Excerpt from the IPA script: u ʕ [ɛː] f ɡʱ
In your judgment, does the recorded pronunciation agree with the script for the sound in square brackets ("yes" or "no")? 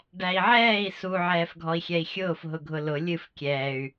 yes